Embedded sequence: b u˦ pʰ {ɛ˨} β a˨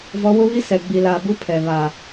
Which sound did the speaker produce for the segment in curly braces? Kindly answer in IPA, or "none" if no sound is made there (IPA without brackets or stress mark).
ɛ˨